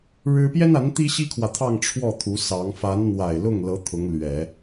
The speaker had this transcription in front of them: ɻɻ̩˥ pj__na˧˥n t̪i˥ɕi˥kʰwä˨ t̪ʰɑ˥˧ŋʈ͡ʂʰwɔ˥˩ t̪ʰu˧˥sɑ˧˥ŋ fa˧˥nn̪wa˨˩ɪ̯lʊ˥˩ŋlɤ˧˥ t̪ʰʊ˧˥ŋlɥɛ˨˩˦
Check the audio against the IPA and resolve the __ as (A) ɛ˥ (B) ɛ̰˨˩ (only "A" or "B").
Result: A